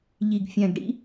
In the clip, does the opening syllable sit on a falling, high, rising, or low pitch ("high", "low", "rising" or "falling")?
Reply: low